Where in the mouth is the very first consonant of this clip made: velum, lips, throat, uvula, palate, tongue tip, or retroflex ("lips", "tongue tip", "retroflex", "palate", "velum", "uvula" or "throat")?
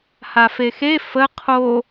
throat